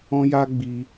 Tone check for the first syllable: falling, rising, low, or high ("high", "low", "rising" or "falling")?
high